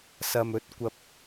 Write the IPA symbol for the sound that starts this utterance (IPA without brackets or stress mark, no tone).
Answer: s